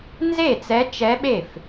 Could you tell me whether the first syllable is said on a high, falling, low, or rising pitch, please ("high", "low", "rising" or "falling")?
falling